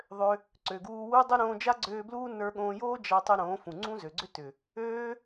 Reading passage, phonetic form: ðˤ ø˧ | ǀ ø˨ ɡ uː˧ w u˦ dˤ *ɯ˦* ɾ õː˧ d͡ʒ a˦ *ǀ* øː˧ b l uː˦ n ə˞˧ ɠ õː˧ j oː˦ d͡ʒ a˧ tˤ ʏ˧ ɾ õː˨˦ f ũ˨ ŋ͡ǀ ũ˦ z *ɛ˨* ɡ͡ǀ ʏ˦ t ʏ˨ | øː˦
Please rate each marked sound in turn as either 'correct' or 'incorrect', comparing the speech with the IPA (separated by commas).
incorrect, incorrect, incorrect